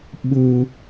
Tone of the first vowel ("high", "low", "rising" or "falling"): high